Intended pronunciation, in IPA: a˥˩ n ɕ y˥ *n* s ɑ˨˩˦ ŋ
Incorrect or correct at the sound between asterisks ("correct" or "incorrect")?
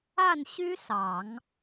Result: incorrect